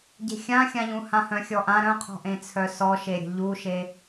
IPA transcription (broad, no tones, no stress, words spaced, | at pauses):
ɟe̤xʲãxʲãʎũ hãhœ̃xʲɔʔã ɾœ̃qʰɔ̤ʔẽt͡sʰœ sɔʃeɾʲə̤ ʎuʃe